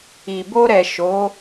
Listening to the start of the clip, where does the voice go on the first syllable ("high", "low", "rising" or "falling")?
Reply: low